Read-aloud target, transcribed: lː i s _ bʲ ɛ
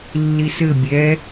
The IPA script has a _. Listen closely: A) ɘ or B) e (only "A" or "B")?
A